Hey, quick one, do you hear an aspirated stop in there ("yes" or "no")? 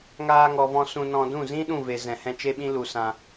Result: no